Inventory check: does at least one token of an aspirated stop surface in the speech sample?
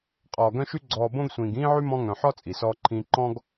yes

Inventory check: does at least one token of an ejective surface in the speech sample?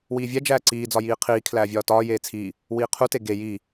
no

